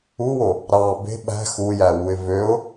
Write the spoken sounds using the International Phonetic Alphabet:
uwo | ɾɑ be̤ ɓæ̤ xujæwuɪ̯ vøʊ̯

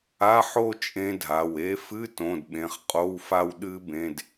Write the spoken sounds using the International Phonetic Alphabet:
a˧˥˧ ħo˥˧ t͡ʃʼẽ˦˥dʱa˩˧˩we˦˥ fɨ˧˥˧tõ˩˧˩d ɓẽ˩˧˩χqʼo˧˥˧wfa˥˧w ɗɨ˦˥ bẽ˧˥˧d

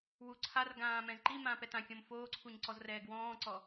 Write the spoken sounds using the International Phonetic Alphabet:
wu ǀʰarɡãː mɛ̃zǃimãːp ɛtãkʲõm foːǀʰuɲ ǀɔzrɛːɡwɔ̃ːǀɔ

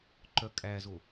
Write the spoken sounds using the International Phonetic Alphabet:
ǃœkʼæzo

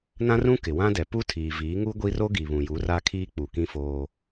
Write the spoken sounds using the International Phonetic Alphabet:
nã˦rũ˦ kɪ˨wã˦dɛ˨ pu˦tʰiː˨viː˨˦ ŋu˦ɡʷi˦ ro˦ɡi˨ βũ˨ju˨˦ra˦kʰiː˦ k͡pu˨kĩ˦ foː˦

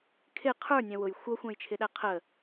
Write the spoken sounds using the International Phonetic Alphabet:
kʰɪ qʰə˞nʲɛ̃ wʊj xʷʌxʷæ̃jt͡ʃʰɪɗæ qʰə

